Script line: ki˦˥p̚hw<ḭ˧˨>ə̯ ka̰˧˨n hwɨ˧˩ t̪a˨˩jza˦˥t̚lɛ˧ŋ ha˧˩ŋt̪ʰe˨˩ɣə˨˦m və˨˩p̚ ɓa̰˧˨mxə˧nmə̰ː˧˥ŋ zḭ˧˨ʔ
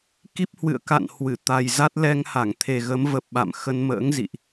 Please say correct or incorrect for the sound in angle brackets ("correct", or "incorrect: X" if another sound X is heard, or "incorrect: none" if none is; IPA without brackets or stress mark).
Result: incorrect: ɨ̰˧˨